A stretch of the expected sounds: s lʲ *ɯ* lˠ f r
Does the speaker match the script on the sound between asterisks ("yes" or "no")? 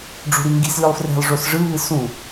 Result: yes